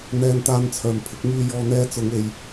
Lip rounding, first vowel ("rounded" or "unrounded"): unrounded